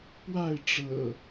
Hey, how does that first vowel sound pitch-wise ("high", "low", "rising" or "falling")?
falling